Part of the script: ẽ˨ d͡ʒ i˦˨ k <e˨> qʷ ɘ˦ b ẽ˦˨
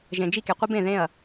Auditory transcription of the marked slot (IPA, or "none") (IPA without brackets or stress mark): e˨